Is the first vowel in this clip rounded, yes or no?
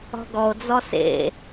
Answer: yes